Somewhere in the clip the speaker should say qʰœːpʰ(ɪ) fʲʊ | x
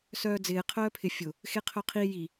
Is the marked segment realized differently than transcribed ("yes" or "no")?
no